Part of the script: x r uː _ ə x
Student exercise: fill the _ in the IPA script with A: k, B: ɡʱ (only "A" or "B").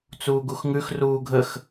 B